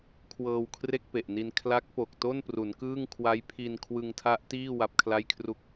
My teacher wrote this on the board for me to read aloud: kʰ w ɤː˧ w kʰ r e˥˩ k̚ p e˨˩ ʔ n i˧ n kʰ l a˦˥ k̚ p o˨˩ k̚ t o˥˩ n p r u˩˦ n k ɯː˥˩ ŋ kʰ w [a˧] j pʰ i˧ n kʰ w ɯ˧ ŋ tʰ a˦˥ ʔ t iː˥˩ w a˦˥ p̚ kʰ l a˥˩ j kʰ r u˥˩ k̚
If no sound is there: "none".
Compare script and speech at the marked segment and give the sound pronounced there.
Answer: a˦˥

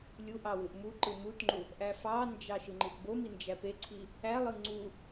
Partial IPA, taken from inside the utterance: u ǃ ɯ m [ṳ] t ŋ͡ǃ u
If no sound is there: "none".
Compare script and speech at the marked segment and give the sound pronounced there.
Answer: u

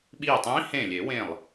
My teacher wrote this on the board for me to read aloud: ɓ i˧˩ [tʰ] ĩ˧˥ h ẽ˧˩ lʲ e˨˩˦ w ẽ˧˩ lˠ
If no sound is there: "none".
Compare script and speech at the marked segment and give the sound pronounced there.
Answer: tˤ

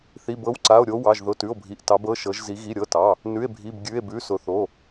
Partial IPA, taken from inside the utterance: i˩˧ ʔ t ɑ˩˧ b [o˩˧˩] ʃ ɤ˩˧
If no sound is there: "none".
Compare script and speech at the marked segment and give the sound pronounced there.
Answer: ɤ˩˧˩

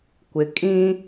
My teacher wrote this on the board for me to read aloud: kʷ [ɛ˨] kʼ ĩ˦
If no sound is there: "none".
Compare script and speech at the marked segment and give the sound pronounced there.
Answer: ɪ˨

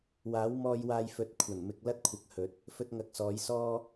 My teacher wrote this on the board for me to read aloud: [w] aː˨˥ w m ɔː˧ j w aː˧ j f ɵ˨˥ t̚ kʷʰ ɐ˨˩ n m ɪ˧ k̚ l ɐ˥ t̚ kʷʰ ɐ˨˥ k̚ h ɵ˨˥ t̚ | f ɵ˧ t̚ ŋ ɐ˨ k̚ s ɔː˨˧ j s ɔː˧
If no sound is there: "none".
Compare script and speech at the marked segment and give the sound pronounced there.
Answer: w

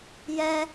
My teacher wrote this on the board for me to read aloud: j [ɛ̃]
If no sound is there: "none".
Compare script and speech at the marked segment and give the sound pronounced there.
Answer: ɛ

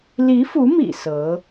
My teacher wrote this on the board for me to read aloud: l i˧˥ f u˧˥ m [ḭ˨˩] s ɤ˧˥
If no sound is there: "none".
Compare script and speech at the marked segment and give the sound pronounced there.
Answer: ḭ˨˩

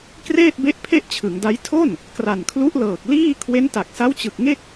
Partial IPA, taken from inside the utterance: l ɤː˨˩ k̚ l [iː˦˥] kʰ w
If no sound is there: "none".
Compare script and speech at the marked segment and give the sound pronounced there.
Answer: iː˥˩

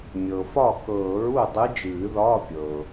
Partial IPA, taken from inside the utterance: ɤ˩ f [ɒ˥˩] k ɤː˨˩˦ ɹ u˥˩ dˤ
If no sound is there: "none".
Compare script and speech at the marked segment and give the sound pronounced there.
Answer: ɒ˥˩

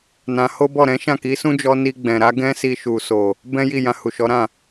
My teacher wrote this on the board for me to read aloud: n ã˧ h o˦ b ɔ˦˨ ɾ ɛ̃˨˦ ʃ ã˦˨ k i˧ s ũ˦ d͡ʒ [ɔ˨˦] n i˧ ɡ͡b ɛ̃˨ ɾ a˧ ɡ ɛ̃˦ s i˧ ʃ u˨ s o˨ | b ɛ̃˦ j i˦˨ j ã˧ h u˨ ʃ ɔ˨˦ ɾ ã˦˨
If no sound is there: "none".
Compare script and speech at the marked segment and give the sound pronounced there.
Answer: ɔ˧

